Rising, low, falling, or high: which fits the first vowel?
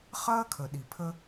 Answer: high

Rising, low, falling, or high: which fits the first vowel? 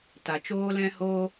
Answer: low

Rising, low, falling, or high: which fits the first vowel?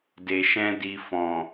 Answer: low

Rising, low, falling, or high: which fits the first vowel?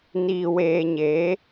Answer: low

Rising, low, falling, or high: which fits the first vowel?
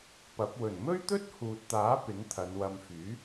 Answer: rising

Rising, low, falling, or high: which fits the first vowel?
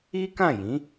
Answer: high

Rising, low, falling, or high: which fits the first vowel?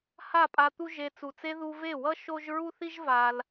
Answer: falling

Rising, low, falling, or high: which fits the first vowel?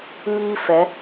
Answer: high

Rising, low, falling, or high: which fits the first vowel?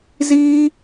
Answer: high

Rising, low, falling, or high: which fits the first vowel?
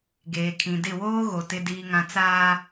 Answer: low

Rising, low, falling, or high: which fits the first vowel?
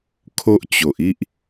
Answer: high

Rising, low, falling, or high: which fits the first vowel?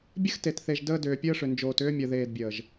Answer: high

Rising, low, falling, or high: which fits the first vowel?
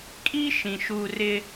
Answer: high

